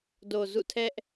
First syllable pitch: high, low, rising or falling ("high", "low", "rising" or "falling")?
low